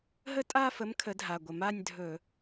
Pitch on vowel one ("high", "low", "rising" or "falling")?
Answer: falling